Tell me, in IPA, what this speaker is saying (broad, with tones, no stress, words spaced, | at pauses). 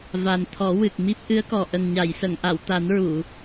va˨˩nt̪ʰɔ˨˩˦ wɨ˨˩k̚ mi˦˥p̚ ʔɨ˧˥ə̯kɔ˨˩ ʔə˨˩ŋɲa˨˩˨jsə˨˩˨ŋʔa˨˩˨w t̪a˨˩˦nɹu˨˩˨